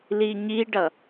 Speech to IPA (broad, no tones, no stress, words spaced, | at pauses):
liɲiɖʌ